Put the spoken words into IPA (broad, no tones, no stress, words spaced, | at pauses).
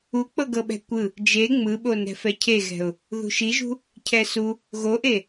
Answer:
uk͡pɤɡɤɓɛ̤ kʷɯ | d͡ʒe ŋ͡mɯɓo nɛ̤fɛcʰeɣɛ̤ʊ̯ | ðṳʃiʒṳ | cʰɛsu | ɣoʔe